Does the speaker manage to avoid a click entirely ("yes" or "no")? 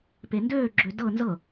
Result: no